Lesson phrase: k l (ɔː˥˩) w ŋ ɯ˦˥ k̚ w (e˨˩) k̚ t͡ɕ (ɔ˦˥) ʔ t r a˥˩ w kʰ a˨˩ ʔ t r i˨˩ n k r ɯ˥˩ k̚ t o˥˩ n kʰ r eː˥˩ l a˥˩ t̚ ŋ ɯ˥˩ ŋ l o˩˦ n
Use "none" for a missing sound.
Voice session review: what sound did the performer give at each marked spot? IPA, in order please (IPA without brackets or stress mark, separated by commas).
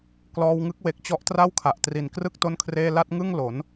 ɔː˧, e˨˩, ɔ˦˥